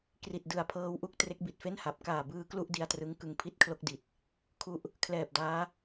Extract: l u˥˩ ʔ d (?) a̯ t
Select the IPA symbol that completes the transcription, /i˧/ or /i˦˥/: i˧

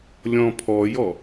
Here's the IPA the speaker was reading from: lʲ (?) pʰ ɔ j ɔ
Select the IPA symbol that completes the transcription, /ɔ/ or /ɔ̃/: ɔ̃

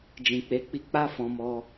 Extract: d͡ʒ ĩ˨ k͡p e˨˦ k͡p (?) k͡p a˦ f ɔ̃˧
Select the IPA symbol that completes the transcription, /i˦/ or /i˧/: i˧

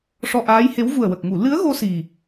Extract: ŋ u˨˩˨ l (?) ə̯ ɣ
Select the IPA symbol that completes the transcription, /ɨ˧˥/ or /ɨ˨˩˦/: ɨ˧˥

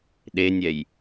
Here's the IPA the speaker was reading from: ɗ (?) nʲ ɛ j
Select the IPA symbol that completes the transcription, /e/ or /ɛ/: e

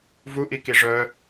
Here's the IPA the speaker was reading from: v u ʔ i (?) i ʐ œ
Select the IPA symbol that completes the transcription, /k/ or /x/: k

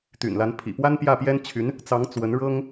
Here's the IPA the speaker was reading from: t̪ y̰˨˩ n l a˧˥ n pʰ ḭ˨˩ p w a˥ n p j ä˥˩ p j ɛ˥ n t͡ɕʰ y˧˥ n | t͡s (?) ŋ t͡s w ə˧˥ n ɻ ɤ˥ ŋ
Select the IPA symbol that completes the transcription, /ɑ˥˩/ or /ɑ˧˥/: ɑ˧˥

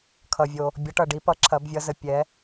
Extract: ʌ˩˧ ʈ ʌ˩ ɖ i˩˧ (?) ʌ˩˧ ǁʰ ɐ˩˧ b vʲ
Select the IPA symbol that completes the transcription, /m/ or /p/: p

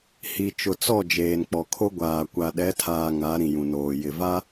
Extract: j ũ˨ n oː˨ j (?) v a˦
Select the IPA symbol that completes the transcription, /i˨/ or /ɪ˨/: ɪ˨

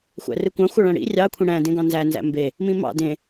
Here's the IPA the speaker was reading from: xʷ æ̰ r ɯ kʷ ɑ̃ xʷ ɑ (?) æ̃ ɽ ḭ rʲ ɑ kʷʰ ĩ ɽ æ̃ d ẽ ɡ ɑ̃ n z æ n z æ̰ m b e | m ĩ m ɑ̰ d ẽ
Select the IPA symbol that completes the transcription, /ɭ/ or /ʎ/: ɭ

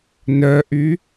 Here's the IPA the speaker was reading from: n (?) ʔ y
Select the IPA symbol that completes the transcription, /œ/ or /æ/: œ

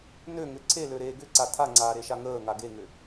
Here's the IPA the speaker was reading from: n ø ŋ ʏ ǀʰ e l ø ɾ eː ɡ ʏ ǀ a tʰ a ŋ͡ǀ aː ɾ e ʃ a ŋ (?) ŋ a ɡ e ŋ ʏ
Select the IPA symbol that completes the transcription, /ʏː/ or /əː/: əː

